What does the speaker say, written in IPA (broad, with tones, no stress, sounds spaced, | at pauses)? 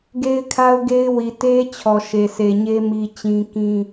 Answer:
ɡ e˦ ɪ̯ kʰ a˦ ʊ̯ ɡ e˦ ɪ̯ w i˨ t e˦ t͡ɕʰ ɔ˨ ʃ e˨ s e˨ ɲ e˦ m i˦ t͡ɕ ĩ˦ k ĩ˦